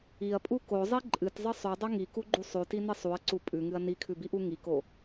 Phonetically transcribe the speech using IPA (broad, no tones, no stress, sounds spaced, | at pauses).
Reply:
i ɐ̯ pʼ u k o zˤ i ǃʼ ɨ t zˤ ɨ sˤ ʉ dˤ o ŋ i k u ɡ͡ǃ u sˤ ʉ t i n ɨ sˤ u ɐ̯ ǀ u pʼ ʉ ŋ ɨ ɐ̯ n i kʰ ʉ b i ʔ u ŋ i k o